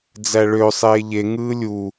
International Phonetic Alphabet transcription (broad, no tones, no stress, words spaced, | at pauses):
d͡zæɭø sˤeːʎe ŋɯːlʲu